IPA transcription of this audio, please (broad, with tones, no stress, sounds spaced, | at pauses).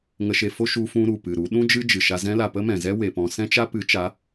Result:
ŋ ə˧ ʃ e˧ f o˦ ʃ u˧ f ũ˧ ɾ u˨ p ɨ˨ ɾ u˨˦ ɗ ũ˦ d͡ʒ ɨ˦ d͡ʒ ɨ˨ ʃ a˧ z ɛ̃˧ l a˨ p ə˦ m ɛ̃˨ z ɛ˦ w e˨ p ɔ̃˧ s ɛ̃˦ t͡ʃ a˦ p ɨ˨˦ t͡ʃ a˨˦